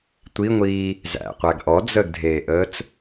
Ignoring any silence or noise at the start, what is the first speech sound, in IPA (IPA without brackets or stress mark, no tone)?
tʷ